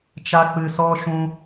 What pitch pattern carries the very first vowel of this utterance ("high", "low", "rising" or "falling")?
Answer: high